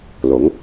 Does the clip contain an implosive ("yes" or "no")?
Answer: no